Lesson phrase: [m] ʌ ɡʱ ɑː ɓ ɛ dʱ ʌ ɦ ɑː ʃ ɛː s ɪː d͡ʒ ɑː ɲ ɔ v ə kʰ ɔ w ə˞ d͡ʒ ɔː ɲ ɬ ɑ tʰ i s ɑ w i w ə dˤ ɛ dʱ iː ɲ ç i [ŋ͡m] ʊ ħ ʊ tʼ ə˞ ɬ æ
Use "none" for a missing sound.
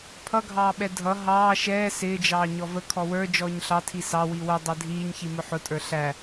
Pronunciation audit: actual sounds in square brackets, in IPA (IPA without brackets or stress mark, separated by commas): pʰ, m